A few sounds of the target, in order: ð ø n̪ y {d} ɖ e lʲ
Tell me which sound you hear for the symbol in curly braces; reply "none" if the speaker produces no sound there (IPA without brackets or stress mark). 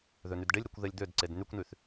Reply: d